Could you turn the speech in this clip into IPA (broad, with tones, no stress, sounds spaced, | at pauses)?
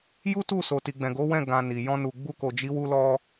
j u˦ t u˦˨ s o˨ t i˨ ɡ͡b ɛ̃˨ ɡ o˨˦ w ɛ̃˦˨ ɡ ã˧ n i˨ j ɔ̃˧ n u˨ ɡ͡b u˧ k o˨ d͡ʒ i˨˦ w u˧ l ɔ˧